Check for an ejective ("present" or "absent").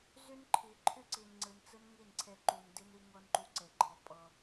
present